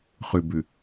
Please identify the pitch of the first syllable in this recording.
low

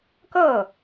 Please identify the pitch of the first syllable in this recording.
falling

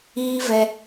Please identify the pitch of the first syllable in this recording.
high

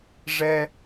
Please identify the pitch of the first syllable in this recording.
high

